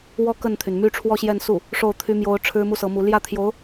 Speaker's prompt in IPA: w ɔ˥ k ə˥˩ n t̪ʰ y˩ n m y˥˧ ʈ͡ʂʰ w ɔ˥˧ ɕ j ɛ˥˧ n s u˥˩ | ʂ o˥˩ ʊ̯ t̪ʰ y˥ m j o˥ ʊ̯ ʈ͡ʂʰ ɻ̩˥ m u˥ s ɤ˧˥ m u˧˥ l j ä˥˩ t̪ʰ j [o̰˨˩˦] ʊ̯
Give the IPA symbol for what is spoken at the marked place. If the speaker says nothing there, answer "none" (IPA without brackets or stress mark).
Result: o˧˥